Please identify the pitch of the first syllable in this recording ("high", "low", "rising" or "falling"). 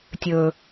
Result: low